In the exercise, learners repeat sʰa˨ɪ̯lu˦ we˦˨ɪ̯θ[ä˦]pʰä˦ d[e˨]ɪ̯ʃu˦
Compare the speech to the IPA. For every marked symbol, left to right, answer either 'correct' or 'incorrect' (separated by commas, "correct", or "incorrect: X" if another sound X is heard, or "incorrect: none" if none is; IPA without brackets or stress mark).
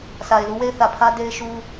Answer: incorrect: ä˨, incorrect: e˦